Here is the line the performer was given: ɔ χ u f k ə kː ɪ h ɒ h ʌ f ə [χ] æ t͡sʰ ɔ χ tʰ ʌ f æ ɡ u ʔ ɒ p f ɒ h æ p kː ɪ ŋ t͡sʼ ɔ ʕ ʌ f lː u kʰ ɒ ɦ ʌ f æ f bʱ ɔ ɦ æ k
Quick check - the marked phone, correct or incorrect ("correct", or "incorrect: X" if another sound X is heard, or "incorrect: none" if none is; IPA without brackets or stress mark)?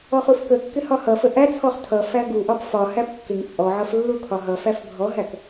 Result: incorrect: ʔ